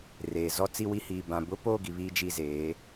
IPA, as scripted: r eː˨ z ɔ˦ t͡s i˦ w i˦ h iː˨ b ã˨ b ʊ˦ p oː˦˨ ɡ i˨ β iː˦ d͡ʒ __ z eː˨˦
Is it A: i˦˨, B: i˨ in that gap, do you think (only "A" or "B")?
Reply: A